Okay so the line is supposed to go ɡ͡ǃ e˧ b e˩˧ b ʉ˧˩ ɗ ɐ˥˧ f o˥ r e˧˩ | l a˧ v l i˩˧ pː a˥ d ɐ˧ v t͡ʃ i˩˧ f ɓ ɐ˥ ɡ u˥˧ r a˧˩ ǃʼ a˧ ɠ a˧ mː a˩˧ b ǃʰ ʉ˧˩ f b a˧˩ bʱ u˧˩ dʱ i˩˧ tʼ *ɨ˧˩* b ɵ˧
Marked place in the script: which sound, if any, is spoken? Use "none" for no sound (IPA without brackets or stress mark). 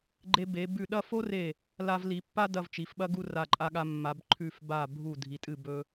ɨ˧˩